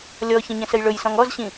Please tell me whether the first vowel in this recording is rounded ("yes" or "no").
yes